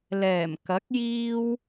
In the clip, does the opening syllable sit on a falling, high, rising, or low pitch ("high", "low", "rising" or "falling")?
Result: low